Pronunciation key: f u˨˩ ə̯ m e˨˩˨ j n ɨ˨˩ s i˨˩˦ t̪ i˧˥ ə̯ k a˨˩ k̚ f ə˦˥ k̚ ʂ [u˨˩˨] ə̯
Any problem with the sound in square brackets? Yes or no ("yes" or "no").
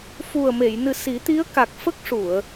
no